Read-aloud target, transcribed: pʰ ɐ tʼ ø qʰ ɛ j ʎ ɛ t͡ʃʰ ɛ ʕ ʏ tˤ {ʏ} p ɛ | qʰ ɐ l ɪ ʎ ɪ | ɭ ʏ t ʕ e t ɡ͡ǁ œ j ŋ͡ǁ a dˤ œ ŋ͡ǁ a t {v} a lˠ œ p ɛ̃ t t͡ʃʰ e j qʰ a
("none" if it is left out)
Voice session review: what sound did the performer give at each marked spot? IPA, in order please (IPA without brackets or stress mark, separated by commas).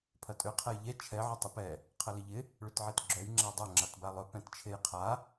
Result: ɪ, b